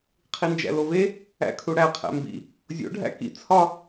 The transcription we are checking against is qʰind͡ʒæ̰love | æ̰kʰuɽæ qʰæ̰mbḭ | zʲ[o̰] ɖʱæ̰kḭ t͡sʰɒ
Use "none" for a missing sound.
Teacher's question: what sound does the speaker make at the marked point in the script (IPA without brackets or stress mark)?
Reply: o̰